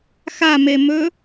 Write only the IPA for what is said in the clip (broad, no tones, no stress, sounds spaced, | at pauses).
x a m e m ɵ